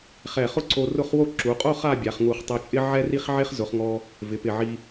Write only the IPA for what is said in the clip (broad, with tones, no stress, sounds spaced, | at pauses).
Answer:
χ ɛ˧˩ χ ʊ˥ ǀ o˧ r ʊ˥˧ χ w o˥ ǁ u˩˧ qʼ o˥˧ χ a˥˧ bʲ a˩˧ χ ŋ u˧˩ χ tˤ e˧ t͡ʃʼ ɪ˥ ʕ ɛ˥ r i˥ χ ʕ e˥ χ z ʊ˩˧ χ ŋ ɔ˧ | v ɪ˩˧ p ɪ˧˩ ʕ i˧